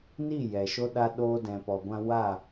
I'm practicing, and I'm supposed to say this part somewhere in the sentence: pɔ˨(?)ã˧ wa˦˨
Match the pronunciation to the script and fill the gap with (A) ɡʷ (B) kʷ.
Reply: A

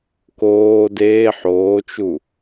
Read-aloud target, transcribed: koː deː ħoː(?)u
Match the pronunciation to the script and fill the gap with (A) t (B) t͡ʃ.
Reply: B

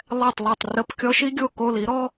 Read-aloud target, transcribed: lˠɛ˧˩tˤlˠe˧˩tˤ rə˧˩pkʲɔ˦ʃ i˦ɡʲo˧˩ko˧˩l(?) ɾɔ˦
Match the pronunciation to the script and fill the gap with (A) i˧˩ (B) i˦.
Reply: B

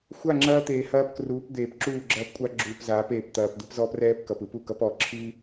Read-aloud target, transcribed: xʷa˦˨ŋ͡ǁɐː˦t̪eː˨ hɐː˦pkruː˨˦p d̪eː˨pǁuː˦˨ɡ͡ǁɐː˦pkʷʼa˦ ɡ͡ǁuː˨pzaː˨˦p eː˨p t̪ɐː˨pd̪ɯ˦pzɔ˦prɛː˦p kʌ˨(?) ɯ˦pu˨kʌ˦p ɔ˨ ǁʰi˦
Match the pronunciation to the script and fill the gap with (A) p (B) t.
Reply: A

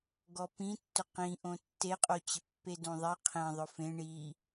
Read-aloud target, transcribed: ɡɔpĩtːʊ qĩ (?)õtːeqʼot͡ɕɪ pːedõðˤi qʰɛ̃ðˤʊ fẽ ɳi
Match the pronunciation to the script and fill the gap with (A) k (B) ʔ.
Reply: B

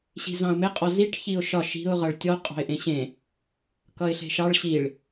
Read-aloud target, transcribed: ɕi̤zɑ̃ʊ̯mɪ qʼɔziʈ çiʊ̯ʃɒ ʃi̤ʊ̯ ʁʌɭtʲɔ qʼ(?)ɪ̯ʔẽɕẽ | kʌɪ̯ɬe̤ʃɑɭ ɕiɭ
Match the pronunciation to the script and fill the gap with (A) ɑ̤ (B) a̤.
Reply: A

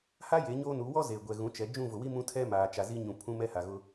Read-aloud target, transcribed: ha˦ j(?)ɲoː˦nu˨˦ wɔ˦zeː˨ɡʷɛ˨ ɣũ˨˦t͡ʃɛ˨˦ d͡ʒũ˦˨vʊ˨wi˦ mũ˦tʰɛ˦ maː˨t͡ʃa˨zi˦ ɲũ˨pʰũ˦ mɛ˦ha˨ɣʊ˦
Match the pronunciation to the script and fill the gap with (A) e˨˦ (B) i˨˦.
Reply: A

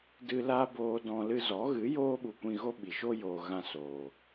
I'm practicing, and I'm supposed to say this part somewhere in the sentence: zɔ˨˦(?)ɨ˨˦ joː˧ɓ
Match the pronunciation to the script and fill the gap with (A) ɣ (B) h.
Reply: A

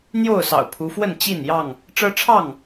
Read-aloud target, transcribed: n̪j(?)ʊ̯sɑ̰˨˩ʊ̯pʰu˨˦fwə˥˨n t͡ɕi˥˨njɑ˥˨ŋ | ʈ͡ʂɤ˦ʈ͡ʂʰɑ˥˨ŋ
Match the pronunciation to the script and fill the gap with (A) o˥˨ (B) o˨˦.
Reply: A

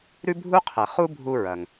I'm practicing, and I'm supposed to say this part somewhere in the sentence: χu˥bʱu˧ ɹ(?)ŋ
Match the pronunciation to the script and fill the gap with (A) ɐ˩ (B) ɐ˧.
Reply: A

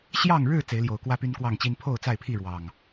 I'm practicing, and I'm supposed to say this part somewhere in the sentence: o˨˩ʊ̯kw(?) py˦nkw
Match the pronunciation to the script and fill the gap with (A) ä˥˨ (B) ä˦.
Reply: B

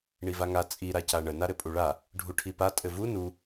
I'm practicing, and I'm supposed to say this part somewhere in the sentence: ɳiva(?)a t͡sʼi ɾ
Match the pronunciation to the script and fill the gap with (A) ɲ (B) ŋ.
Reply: B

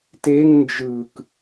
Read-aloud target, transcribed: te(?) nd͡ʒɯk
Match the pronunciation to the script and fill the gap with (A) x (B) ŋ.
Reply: B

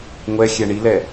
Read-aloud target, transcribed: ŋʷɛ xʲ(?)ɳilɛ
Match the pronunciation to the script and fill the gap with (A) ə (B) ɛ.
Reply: B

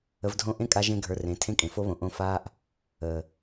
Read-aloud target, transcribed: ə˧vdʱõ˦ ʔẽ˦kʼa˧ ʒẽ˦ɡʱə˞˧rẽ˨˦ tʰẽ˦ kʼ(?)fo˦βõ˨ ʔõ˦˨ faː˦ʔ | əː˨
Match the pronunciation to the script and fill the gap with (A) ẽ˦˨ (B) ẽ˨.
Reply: B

